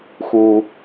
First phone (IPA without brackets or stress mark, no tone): x